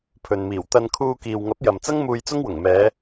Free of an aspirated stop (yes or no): no